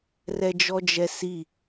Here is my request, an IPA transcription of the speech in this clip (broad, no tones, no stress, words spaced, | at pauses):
rɛd͡ʒɔd͡ʒɛsi